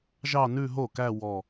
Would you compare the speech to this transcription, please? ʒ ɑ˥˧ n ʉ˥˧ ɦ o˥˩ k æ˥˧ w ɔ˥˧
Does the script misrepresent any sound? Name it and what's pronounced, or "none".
none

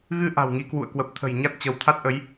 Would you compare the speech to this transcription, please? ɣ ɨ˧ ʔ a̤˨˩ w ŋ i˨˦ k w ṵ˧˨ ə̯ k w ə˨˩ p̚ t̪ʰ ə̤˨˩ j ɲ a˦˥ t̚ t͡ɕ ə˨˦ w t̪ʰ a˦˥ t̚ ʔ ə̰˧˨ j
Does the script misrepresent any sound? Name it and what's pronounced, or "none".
ə̰˧˨ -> ə˨˦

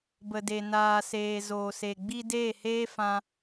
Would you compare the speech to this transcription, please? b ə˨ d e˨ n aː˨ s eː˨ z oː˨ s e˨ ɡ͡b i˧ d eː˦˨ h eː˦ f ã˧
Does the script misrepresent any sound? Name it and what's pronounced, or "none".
none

